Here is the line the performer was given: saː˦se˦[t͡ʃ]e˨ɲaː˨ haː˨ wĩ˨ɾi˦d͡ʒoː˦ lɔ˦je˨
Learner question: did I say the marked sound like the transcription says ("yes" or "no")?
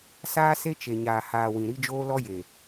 yes